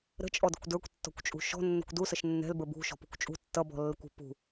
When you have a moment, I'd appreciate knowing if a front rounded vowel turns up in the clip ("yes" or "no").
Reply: no